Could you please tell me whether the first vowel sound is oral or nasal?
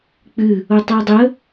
oral